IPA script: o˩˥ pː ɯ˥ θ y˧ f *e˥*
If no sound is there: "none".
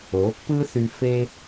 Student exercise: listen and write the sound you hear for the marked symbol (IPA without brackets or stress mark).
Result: e˥